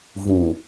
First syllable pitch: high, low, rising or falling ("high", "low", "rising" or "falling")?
low